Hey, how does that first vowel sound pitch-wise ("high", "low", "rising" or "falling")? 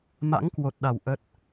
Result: rising